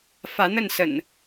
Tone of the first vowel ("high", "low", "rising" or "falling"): rising